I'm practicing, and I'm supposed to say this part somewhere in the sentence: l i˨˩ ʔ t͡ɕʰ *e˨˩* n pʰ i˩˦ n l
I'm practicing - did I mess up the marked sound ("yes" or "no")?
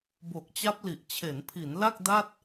yes